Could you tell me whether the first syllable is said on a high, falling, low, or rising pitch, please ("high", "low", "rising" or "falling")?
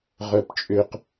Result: high